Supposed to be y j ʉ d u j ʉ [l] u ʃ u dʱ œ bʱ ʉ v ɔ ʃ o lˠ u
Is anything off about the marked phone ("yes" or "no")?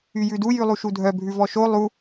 yes